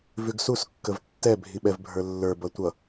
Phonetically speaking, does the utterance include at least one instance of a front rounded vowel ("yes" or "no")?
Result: no